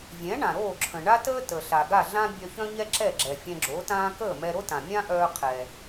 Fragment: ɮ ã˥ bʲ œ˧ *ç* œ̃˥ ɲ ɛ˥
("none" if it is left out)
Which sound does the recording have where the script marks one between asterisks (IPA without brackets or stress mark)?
ç